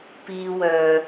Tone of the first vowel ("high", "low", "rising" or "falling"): high